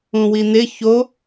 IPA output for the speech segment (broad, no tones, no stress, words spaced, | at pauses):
ũwin̪ɪ ço